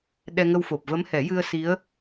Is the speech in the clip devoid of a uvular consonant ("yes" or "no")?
yes